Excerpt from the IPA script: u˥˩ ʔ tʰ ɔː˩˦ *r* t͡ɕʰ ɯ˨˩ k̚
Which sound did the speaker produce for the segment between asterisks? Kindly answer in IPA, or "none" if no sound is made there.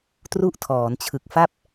n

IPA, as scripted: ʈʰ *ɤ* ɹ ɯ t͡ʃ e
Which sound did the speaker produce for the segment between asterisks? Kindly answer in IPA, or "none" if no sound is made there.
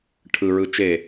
ɯ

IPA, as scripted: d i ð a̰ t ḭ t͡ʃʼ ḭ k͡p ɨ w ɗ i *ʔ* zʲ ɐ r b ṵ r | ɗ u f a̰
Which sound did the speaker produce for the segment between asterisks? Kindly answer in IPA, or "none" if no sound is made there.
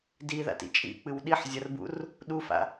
ħ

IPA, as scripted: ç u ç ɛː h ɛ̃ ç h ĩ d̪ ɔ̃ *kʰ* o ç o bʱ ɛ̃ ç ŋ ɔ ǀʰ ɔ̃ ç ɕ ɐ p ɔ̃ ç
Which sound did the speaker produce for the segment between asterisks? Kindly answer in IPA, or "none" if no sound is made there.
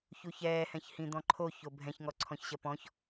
ǃʰ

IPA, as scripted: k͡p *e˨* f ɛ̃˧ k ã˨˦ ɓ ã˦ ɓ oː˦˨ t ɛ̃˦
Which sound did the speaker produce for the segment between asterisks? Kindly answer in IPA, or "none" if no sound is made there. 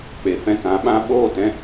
e˨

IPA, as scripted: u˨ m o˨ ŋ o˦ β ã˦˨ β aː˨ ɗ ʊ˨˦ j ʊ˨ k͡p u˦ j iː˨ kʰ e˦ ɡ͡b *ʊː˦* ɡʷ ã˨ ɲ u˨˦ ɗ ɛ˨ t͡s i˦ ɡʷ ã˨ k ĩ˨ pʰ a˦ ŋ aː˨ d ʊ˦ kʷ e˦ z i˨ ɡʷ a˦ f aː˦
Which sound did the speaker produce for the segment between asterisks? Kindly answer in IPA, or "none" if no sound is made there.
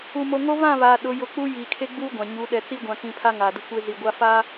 uː˦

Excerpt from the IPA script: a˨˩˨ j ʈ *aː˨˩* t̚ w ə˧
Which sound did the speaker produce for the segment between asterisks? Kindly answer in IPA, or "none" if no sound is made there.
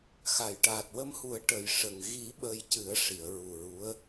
aː˨˩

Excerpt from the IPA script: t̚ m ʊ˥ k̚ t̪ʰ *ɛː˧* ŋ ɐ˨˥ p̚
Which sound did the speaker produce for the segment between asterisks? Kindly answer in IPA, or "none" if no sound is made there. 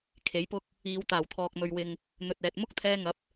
ɛː˧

